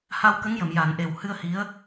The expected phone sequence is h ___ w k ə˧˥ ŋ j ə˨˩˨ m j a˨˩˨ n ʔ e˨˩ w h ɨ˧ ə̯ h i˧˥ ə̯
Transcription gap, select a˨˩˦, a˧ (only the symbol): a˧